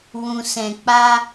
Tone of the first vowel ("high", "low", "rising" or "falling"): low